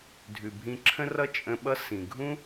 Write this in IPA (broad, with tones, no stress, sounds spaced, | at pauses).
dʱ ʉ˩ bʱ ĩ˧ ǁʰ ə̃˥ r ʌ˥ t͡ʃʼ ə̃˧ ɓ ʌ˥ s ĩ˩ ɡʱ ũ˥